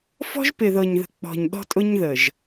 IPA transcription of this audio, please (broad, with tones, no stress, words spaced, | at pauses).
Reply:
fɔ̤˦ʒpɪ˨ðɤ˨ɲðə̤˨ k͡pɔ̤˨ɲɗɔ̤˦tʼʊ˦ɲðə˨ʒ